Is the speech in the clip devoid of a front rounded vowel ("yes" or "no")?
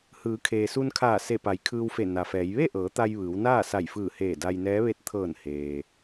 yes